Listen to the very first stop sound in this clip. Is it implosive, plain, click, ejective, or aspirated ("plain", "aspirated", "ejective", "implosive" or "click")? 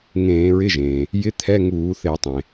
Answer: aspirated